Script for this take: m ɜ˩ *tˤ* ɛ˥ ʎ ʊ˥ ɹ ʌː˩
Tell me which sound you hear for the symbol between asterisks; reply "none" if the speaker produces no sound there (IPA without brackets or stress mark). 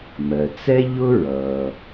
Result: t͡s